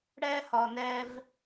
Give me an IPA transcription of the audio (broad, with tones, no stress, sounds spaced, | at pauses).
ɽ æ˧ h ɒ˨ n æ˧ v